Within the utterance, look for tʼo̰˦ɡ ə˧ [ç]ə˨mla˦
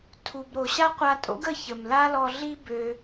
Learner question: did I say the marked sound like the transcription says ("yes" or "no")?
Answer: yes